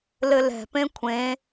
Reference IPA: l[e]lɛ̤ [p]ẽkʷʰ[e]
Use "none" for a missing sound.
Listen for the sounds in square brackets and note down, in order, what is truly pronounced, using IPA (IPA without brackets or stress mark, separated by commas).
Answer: ɘ, p, ẽ